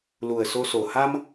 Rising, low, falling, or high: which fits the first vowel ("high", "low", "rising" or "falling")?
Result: low